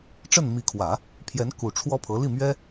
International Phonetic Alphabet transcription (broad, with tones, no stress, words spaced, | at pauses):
ʈ͡ʂə˥˩nmi˧˥kʰwä˨˩˦ | pʰjɛ˧˥n ku˨˩ʈ͡ʂʰwɔ˥pʰɤ˧˥ li˥˩mɥɛ˥